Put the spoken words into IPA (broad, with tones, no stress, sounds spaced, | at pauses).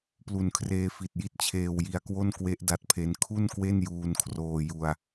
p l u˨˩ n kʰ r eː˧ f i˨˩ t̚ j i˦˥ t̚ t͡ɕʰ eː˧ w j i˧ a̯ k w o˥˩ n k w e˦˥ ʔ d a˦˥ t̚ pʰ e˦˥ n kʰ u˥˩ n k w e˥˩ n j uː˧ n kʰ r oː˧ j u˧ a̯